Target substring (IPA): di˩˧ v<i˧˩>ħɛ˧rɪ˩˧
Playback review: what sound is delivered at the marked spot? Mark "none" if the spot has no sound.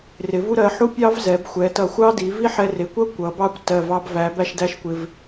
i˥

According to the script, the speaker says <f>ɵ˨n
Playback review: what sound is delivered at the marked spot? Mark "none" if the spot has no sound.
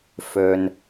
f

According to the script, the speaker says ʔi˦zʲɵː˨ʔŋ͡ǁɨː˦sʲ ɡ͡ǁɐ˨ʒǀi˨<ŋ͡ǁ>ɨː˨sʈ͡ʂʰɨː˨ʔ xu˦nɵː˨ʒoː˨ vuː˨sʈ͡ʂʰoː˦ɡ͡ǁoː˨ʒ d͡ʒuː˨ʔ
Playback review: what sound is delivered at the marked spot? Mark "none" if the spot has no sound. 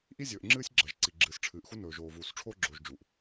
ɡ͡ǁ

